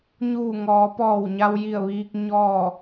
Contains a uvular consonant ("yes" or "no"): no